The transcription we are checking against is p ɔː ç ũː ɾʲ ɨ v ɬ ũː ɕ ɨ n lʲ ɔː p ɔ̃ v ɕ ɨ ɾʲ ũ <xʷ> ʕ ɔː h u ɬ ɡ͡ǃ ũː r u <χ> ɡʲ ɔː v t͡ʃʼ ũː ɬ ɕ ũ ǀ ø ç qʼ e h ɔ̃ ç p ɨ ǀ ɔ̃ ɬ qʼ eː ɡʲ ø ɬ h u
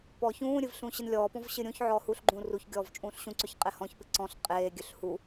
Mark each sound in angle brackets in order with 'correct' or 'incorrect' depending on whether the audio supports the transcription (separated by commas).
incorrect, incorrect